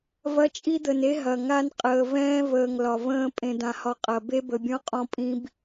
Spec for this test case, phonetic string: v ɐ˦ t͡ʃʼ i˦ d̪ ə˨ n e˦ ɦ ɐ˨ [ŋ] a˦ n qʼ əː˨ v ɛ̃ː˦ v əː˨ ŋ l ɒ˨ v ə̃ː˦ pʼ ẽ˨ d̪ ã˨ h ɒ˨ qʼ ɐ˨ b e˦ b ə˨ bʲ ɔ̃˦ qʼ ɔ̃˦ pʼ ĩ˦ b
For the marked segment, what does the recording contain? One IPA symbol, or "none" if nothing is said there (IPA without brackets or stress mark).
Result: ŋ